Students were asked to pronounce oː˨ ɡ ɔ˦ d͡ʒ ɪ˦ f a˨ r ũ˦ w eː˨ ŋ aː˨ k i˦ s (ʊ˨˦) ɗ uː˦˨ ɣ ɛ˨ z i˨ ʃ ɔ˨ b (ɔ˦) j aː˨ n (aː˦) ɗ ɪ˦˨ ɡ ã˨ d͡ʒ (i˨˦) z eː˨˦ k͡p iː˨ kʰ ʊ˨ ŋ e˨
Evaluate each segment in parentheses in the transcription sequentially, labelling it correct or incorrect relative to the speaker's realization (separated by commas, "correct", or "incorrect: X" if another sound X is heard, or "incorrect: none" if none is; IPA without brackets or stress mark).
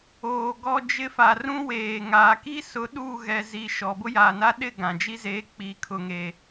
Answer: correct, incorrect: ʊ˦, incorrect: a˦, incorrect: i˦